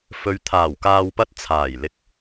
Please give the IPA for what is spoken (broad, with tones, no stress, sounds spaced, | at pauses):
f ɵ˨ ɥ t̪ʰ aː˨˩ w k aː˨ w p ɐ˧ t̚ t͡sʰ aː˨˩ j l ɪ˨ k̚